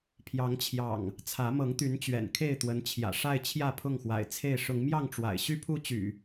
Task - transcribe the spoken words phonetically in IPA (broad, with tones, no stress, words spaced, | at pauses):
pʰjɑ˨˦ŋt͡ɕʰjɑ̰˨˩ŋ | t͡sʰä˨˦mɤ˨˦ŋt̪y˨˦n t͡ɕɥɛ̰˨˩nkʰe˥˨ɪ̯t̪wə˨˦n t͡ɕʰjä̰˨˩ʂa˥˨ɪ̯ t͡ɕʰjä˥˨pʰʊ˥˨ŋxwa̰˨˩ɪ̯t͡sʰe˥˨ɪ̯ ʂʊ˨˦ŋmjɑ˥˨ŋʈ͡ʂwa̰˨˩ɪ̯ ɕy˦pʰu˦t͡ɕy̰˨˩